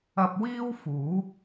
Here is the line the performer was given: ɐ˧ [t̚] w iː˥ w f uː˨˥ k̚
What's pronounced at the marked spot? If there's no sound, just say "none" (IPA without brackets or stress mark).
p̚